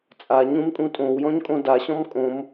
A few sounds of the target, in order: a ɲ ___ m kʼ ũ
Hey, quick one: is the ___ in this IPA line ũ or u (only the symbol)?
ũ